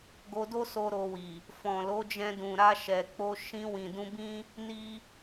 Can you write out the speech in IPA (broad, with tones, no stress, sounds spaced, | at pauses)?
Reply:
ɡ o˧ d o˦ s o˦ ɾ o˧ w i˨ | f ɔ̃˨ l o˨˦ d͡ʒ ɛ̃˧ d ũ˨ ɾ a˧ ʃ ɛ˨ k͡p o˧ ʃ ĩ˧ w ĩ˨ d ũ˧ b ĩ˦ | n i˦